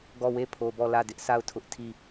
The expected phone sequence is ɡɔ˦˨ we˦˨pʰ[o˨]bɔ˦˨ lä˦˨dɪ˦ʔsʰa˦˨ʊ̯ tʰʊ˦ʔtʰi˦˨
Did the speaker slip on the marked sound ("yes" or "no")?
no